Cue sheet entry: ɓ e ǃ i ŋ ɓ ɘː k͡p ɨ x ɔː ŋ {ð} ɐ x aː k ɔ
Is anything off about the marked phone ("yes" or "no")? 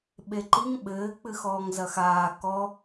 yes